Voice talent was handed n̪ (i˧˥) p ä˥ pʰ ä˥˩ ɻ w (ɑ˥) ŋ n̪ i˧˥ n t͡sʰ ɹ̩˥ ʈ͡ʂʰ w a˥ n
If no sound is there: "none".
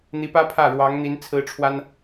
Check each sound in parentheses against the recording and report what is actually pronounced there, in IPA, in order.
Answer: i˧˥, ɑ˧˥

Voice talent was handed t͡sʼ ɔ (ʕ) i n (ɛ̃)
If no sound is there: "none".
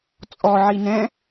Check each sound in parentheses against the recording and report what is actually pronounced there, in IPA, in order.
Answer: ʕ, ɛ̃

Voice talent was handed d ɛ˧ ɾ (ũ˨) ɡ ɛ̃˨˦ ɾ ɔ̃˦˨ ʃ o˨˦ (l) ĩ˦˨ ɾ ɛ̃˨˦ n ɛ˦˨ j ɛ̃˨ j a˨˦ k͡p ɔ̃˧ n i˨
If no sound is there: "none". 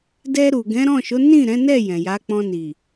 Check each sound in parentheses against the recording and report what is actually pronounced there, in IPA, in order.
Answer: u˨, n

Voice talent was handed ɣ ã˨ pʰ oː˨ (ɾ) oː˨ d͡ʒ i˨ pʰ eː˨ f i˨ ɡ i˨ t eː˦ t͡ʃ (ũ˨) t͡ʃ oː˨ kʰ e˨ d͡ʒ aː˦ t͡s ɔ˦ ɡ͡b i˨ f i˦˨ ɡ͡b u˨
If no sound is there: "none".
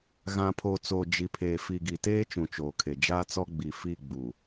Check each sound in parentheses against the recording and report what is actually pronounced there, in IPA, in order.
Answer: t͡s, ũ˨

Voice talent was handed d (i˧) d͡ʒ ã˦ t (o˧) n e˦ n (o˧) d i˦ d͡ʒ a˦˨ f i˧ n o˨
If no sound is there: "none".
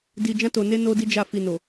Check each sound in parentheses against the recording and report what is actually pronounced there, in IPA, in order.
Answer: i˧, o˧, o˦

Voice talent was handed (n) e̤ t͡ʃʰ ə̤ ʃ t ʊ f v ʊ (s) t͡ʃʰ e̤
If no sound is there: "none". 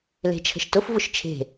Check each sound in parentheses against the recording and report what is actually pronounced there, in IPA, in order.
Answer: l, ʃ

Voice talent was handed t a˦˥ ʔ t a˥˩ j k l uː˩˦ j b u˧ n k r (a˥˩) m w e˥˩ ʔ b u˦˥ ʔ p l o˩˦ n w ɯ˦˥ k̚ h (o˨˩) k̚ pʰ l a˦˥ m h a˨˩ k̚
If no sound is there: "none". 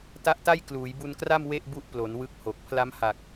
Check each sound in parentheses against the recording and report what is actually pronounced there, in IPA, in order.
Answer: a˥˩, o˨˩

